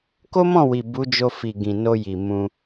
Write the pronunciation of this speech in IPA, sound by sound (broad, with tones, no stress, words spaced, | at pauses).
ko˦mɔ̃˦˨wi˨ bu˨˦d͡ʒo˧fi˨ ɡĩ˨no˧ji˨ mũ˧